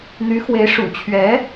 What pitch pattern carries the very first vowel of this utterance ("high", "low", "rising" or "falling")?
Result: rising